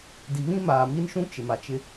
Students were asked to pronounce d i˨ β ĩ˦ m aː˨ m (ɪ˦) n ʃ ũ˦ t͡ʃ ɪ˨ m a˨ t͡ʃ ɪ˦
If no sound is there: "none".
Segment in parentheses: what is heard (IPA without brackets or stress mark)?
i˦